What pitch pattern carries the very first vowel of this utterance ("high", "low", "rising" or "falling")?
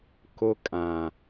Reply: high